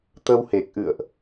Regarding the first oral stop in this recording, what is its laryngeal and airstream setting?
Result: plain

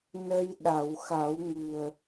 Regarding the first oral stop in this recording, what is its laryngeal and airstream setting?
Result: implosive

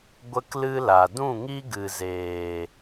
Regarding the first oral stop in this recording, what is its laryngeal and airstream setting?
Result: plain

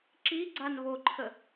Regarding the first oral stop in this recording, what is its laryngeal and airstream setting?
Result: click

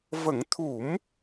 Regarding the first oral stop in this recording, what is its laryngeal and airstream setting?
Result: aspirated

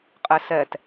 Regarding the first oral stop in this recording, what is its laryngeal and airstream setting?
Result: ejective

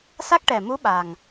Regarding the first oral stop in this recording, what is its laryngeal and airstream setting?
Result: plain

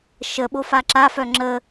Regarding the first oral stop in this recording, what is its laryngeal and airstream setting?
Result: implosive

